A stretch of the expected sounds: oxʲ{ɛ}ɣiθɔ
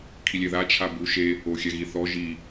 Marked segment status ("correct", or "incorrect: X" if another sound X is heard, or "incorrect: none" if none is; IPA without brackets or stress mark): correct